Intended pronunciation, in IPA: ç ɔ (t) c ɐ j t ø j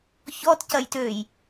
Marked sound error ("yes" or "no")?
no